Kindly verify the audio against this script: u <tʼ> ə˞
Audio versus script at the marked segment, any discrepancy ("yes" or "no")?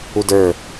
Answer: yes